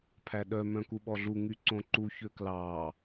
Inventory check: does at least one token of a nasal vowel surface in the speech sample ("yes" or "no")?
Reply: yes